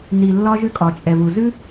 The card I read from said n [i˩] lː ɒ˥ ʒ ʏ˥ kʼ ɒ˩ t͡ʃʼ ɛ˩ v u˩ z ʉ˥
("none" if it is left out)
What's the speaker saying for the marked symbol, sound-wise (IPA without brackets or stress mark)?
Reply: i˩